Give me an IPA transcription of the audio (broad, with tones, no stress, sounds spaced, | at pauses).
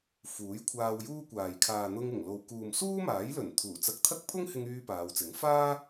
f uː˨˥ j kʷʰ aː˧ w j uː˥ kʷ aː˨ j kʰ aː˨ n̪ ʊ˧ ŋ ɪ˨˩ ŋ l o˨ w k uː˨ m s uː˥ m aː˨˥ j l ɵ˨˩ n t̪ʰ uː˨˩ t͡s ɐ˧ k̚ t̪ʰ ɐ˥ k̚ pʰ ʊ˥ ŋ h ɪ˧ ŋ yː˥ p aː˨˧ w t͡s ɪ˨˥ ŋ f aː˥